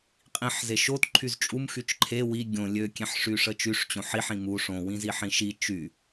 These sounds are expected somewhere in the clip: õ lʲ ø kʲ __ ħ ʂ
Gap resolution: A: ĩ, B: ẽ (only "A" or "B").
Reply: B